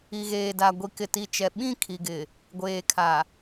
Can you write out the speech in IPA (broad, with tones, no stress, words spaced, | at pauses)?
i˨ɣeː˨da˨ ɡʷi˨kɪ˨ti˨t͡ʃɛ˨ ɓĩ˦˨ kʰi˨ɡɪ˨ | ɡʷeː˨kʰa˨